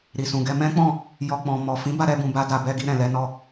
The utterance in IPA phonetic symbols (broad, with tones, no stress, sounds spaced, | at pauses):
ɾ i˨ s ũ˨ ɡ ɛ˧ m ɛ̃˦ k͡p ɔ̃˦˨ | j ɔ˧ k͡p ɔ̃˨ m ɔ˨ f ĩ˨˦ b a˧ ɾ ɛ˧ b ũ˨ b a˧ d a˨ b ɛ˧ ɡ i˧ ɾ ɛ̃˨ l ɛ˧ n ɔ˧